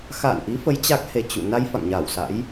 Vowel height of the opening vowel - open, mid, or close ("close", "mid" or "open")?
open